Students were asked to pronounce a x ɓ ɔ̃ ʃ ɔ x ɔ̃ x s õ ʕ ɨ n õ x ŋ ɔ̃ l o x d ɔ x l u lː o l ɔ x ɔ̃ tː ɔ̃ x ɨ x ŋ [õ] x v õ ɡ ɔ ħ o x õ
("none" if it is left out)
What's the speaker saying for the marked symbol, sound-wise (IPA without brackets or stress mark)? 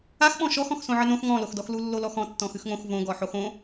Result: õ